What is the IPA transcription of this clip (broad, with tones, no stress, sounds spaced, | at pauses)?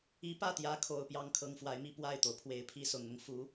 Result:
i˧˥ p ä˥˩ t̪ j ä˧˥ kʰ o˨˩ ʊ̯ p j ɑ˥ ŋ kʰ ɤ˧˥ ŋ f w a˧˥ ɪ̯ m i˥˧ p w a˥˩ ɪ̯ t̪ o˩ ʊ̯ pʰ w e˨˩ ɪ̯ pʰ i˧˥ s ʊ˨˩ ŋ n̪ ʊ˦ ŋ f u˧˥